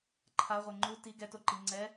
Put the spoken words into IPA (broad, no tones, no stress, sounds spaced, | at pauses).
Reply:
ǃʰ a ʁʷ ɛ ŋ͡ǃ u t i ɡ ɛ t o ǃ i ŋ͡ǀ ɛ